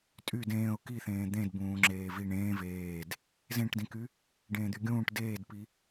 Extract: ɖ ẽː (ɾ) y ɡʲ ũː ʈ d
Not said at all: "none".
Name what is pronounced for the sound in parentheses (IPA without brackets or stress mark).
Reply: d̪